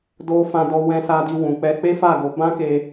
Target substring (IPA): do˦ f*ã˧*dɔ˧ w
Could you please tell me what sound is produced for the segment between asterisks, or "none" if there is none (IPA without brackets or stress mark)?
ã˧